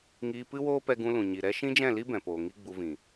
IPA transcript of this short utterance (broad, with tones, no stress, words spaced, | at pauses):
ŋiː˧pɨ˦woː˦pɛ˧ ɡũ˧lũ˨ ɲi˨ɾɛ˦ ʃĩ˦d͡ʒɛ̃˦˨li˦ bɛ̃˨poː˨ŋi˦ ɡ͡bu˧vĩ˨